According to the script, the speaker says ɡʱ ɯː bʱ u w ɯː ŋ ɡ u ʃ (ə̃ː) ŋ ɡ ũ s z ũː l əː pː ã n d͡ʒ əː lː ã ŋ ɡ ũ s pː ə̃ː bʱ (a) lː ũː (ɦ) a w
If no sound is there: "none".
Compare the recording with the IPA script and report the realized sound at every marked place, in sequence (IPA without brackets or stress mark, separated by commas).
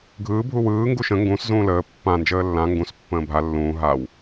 ə̃, a, ɦ